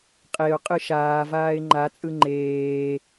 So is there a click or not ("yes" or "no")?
yes